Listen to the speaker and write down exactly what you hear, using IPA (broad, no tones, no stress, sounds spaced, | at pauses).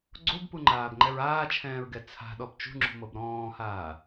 ɡ͡ǀ o b p u ŋ͡ǃ aː b ŋ͡ǃ ɛ ɹ aː t͡ʃʰ ɛ̃ː ɹ ɡ ɛ t͡sʰ a̤ ɗ ɔ b t͡ʃ ṳ ŋ͡ǁ ṳ m ɤ b ɾ ɔ̃ː h aː